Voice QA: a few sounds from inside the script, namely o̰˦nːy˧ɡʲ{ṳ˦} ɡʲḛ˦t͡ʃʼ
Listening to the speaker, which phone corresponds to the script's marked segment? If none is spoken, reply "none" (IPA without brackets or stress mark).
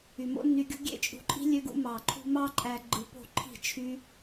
ṳ˦